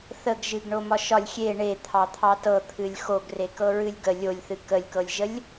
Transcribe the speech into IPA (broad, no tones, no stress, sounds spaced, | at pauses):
θ ə ɡ ʒ ɨ ɡ ɳ o m ɒ ʃ ɒ lʲ xʲ e ɳ e t̪ʰ ɑ t̪ʰ ɑ t ɤ t̪ʰ ɨ lʲ x o ɡ r e k ɤ ɹ ɨ lʲ ɡ ə lʲ o lʲ θ ɨ k ə lʲ k ɤ lʲ ʒ ə lʲ